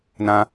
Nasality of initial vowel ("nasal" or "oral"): nasal